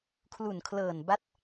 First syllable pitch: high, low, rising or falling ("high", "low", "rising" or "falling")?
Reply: low